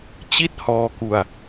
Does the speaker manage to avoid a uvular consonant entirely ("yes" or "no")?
yes